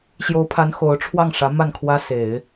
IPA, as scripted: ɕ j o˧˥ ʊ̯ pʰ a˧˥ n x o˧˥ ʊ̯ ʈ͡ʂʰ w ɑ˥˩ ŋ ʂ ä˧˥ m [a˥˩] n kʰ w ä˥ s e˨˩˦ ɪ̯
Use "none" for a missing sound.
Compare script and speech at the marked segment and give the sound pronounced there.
a˥˩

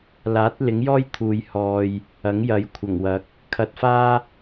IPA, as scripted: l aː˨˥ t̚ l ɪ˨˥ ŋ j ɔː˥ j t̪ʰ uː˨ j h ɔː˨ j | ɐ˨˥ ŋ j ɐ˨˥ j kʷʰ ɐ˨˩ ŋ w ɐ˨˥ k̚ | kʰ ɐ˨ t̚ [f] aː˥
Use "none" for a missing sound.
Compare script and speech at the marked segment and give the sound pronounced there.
f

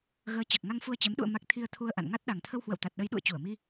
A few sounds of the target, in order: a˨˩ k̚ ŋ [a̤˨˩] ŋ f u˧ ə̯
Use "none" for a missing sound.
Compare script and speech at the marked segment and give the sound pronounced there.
a˧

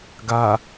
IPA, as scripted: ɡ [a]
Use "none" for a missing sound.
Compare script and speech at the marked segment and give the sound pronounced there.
a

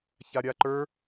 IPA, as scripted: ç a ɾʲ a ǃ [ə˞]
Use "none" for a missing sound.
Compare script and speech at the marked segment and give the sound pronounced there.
ə˞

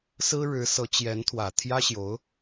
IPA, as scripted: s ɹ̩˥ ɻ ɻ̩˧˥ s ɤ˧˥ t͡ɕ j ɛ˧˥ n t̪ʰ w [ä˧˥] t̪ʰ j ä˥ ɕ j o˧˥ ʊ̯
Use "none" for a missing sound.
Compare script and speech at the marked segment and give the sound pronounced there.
ä˨˩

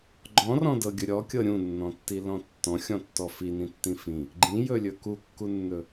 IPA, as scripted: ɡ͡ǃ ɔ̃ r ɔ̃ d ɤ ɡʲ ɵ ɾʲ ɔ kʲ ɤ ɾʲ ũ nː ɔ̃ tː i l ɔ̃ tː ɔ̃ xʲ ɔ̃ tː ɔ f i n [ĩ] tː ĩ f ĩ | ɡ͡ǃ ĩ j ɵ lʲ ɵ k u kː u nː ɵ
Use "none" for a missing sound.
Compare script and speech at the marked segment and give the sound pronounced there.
ĩ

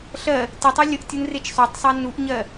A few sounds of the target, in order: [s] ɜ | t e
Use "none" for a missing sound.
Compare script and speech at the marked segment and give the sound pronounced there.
ɬ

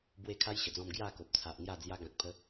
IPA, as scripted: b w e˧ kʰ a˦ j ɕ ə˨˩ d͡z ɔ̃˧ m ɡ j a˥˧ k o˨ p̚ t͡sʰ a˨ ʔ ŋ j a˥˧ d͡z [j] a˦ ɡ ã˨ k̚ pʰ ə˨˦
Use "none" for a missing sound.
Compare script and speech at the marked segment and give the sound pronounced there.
j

